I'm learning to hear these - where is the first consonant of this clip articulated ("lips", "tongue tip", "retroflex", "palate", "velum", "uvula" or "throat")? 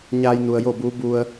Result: palate